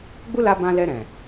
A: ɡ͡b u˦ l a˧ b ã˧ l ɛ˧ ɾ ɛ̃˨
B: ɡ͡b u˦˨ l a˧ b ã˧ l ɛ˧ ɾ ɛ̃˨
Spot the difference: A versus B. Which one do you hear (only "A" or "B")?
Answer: A